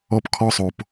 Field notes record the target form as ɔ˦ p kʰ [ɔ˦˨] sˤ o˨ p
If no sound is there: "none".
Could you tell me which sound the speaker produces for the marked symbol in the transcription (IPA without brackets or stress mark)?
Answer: ɔ˦